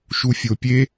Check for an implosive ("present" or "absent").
absent